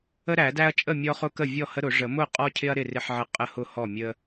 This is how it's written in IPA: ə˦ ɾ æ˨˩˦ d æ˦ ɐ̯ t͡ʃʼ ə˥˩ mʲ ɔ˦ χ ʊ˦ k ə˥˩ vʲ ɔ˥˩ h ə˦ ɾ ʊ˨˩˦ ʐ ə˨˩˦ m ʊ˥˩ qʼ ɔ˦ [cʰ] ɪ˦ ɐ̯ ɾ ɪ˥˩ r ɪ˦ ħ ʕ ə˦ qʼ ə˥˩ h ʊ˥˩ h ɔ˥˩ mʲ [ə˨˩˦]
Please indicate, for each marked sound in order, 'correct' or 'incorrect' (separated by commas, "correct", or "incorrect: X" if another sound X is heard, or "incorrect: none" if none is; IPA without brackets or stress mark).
correct, incorrect: ə˦